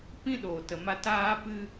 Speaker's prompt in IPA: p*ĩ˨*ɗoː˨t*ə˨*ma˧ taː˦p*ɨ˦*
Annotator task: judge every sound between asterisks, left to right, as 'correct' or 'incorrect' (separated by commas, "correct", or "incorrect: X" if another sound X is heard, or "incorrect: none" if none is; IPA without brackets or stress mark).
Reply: incorrect: ĩ˦, correct, correct